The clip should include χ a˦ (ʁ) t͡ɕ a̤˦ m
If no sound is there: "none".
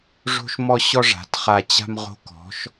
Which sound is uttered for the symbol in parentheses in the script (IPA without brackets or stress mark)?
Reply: none